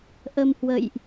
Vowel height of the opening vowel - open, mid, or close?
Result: mid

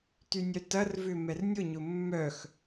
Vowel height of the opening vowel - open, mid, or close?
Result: close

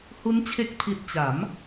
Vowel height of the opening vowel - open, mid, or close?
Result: close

